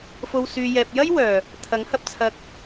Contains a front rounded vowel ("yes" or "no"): yes